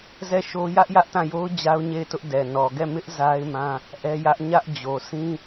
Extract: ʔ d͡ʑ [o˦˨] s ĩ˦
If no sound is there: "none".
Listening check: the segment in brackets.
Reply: o˨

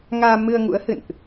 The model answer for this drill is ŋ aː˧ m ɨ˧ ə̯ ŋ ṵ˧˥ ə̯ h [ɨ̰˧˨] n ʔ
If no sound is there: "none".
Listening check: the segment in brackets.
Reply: ɨ̰˧˨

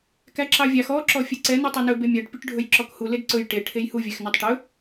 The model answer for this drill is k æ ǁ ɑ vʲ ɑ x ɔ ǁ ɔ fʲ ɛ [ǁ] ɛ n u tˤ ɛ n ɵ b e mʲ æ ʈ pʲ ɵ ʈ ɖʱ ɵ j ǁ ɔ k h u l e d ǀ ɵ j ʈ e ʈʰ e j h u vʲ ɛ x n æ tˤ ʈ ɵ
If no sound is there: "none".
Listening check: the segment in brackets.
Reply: ǀ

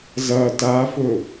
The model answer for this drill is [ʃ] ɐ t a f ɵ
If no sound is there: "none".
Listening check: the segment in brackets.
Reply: z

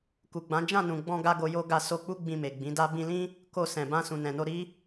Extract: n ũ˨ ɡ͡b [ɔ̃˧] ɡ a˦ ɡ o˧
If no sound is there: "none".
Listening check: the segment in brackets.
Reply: ɔ̃˧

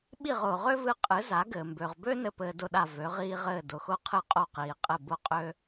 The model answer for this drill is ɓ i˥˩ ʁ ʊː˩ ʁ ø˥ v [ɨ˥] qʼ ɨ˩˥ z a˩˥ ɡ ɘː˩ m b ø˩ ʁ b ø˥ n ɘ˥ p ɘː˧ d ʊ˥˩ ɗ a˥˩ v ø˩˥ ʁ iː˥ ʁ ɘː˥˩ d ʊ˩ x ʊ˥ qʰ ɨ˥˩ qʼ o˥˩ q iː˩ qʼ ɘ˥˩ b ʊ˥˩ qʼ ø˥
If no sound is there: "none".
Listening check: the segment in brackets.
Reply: ɨ˧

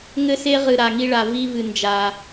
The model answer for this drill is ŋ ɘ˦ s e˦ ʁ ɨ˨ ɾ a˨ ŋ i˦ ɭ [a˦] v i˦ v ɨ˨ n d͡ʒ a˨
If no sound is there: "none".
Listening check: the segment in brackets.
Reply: a˨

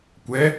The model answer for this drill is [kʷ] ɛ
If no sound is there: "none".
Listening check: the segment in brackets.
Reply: kʷ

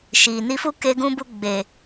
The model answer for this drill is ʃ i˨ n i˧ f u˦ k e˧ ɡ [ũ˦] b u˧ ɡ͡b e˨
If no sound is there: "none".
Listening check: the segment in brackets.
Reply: ũ˧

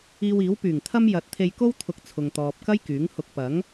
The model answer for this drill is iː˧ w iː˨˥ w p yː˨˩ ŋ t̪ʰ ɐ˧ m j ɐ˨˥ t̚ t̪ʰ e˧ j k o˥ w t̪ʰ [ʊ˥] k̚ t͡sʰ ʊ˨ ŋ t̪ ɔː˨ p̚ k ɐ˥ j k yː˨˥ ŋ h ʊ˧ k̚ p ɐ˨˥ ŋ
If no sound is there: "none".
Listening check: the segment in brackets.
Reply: ʊ˧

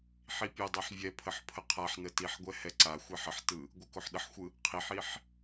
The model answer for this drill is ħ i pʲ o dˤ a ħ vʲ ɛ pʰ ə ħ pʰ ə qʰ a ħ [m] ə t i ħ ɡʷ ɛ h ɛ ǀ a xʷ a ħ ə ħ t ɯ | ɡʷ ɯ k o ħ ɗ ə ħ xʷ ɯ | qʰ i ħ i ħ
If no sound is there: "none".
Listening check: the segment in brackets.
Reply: n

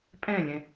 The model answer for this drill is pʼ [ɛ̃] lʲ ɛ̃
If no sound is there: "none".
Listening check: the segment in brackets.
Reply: ɛ̃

